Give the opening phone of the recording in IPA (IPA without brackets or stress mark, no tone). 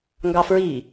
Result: ŋ